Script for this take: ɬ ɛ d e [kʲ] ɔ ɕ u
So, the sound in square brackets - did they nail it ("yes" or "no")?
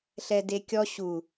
yes